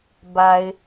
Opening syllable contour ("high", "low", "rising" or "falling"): low